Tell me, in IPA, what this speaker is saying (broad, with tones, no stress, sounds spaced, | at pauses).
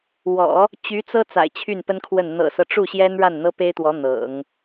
w ɔ̰˨˩˦ | t͡ɕ y˧˥ t͡s ɤ˥ t͡s a̰˨˩ ɪ̯ t͡ɕʰ y˥˩ n p ə˥ n kʰ w ə˥˩ n n̪ ɤ̰˨˩ s ɤ˦ ʈ͡ʂ u˥˩ ɕ j ɛ˥ n ɻ a˥˩ n n̪ ɤ˥ p e˥ ɪ̯ t̪ w ɔ˧˥ n̪ ɤ̰˨˩˦ ŋ